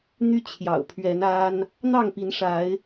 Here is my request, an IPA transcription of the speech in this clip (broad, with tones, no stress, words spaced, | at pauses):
n̪y˦t͡ɕʰjɑ̰˨˩ʊ̯pʰɥɛ˨˦na˦n | n̪ɑ˥˨ŋpi˨˦n ʂa˨˦ɪ̯